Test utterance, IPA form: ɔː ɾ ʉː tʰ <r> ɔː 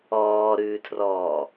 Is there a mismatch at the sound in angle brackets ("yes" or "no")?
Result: no